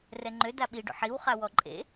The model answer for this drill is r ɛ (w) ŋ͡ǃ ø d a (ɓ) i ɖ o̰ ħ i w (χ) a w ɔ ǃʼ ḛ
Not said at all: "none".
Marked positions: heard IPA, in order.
none, ɓ, χ

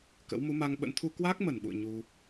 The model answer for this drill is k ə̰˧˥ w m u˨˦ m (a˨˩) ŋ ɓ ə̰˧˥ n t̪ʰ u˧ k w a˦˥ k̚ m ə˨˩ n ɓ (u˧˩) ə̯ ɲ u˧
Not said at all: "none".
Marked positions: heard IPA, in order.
a˧, ṵ˧˨

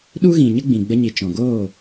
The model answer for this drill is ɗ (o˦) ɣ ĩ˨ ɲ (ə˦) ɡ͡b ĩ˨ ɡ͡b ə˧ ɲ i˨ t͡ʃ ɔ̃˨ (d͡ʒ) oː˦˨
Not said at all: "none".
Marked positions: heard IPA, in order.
u˦, ə˦, ɡ

